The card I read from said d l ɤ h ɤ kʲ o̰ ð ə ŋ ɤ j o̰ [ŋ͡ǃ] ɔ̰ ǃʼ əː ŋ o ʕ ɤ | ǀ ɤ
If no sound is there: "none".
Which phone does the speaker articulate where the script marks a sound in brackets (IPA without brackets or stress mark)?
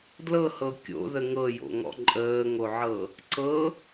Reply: ŋ